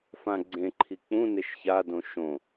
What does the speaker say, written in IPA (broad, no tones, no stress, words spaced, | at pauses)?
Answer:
fãɡ͡ǀẽǃʰi k͡pũneʃ çadõ ʃõ